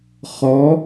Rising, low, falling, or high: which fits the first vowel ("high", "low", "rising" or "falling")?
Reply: rising